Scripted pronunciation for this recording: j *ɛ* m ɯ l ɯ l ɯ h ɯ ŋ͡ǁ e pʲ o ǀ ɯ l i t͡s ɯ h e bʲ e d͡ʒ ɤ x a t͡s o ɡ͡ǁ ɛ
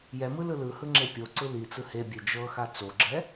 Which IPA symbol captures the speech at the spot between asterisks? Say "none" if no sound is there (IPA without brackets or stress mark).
ɛ